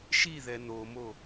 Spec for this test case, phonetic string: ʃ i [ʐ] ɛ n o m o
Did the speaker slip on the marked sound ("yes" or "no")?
yes